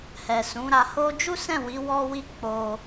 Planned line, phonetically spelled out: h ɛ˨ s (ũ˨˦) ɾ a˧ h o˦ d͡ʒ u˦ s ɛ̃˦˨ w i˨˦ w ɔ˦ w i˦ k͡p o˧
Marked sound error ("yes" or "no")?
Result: no